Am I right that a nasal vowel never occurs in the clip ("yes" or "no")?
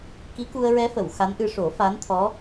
yes